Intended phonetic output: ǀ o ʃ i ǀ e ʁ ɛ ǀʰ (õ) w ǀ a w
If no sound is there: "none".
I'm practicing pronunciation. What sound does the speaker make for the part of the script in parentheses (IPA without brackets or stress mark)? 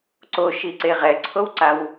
o